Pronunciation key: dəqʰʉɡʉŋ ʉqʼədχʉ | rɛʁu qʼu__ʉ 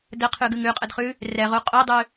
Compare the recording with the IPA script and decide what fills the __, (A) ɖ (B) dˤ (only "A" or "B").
B